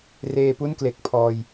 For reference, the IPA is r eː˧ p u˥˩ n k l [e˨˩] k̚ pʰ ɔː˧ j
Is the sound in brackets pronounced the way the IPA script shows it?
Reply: yes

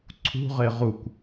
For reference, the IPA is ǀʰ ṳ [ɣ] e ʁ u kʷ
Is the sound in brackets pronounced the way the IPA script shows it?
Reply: no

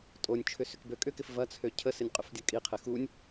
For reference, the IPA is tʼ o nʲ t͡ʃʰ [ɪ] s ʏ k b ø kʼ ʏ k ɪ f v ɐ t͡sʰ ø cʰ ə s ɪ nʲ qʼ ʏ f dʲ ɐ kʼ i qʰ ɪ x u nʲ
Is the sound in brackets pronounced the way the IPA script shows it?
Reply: no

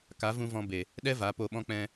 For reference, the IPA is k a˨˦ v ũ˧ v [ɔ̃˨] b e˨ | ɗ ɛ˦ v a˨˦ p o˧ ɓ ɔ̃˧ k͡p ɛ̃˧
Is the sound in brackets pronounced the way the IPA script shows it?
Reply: no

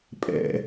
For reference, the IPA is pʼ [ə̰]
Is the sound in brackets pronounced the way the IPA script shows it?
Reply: no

